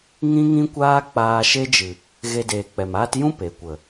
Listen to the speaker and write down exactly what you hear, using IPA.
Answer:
ŋĩ˦ŋĩ˦kʷaː˦ k͡paː˧ʃe˦d͡ʒɨ˨ | ɣe˧deː˨k͡pɛ˨maː˦t jũ˦ pe˨kʷə˨

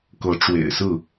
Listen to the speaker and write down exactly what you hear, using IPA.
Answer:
kɤ˨˦ ʈ͡ʂwḛ˨˩ɪ̯sɹ̩˥˨

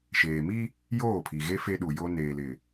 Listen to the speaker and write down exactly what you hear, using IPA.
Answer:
ʃeː˨mi˦ | joː˦˨pʰi˨ɣe˦ fe˦ɗu˨jo˦ neː˨lɪ˨

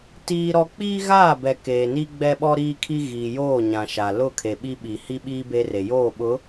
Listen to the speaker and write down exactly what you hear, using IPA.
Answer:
tiː˦ɾɔ˦ k͡piː˦ɣaː˦˨bɛ˨ keː˨ni˦ ɡ͡bɛ˦ɓɔ˦ɾiː˦kʰi˦ ɣiː˨joː˦˨ ɲã˨ʃa˨ lʊ˦˨kʰe˨ ɓi˦ɓi˨ hi˦ɓiː˦ be˦re˨ joː˦˨ɓʊ˨˦

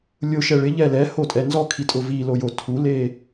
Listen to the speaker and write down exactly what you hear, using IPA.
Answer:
lʲʊʃɛ ɭɪʎɛ lɛhotʼɛ nzɔkʰitʼʊ vilojo tʰule

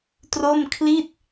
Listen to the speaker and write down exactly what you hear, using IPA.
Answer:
tro˥˩mkʰli˥˩t̚

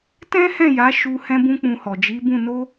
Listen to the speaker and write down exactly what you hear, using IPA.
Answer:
tɛ̃˦hɛ̃˦˨ja˨˦ ʃu˧ hɛ̃˦bũ˦k͡pũ˧hɔ˨ d͡ʒi˨˦bũ˦˨ no˧

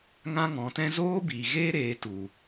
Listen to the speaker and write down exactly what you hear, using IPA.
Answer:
ŋã˦ ŋɔ̃˨˦tɛ̃˦ zoː˦biː˨ɣeː˦ ɾeː˨˦tu˨

